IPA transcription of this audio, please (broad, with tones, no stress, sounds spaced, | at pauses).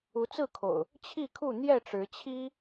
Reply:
u˨˦ t͡s ɹ̩˥˨ kʰ o̰˨˩ ʊ̯ | t͡ɕʰ i˥˨ kʰ u˥˨ n̪ j ɛ˥˨ ʈ͡ʂ ɻ̩˨˦ t͡ɕʰ i˦